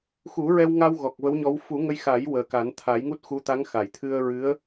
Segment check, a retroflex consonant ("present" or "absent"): absent